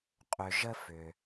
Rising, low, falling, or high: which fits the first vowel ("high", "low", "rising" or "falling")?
low